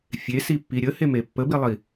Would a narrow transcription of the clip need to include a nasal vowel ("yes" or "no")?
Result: no